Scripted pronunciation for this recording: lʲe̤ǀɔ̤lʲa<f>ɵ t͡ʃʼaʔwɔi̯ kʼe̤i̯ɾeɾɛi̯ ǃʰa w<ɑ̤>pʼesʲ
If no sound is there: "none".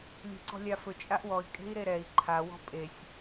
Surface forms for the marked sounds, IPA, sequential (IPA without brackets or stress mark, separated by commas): f, ɔ̤